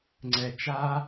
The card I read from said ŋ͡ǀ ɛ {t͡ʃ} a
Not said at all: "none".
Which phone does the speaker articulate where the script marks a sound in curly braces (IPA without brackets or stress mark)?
t͡ʃ